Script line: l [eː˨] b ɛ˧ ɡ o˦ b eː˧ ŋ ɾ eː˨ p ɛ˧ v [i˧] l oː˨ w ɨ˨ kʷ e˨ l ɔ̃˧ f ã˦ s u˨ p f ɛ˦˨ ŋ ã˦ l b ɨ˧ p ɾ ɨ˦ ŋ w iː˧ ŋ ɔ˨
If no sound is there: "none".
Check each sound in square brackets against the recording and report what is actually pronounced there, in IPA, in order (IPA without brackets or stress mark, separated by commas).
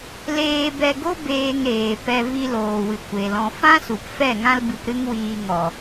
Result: eː˧, i˧